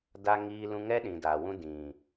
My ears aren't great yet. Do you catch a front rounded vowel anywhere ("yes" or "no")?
no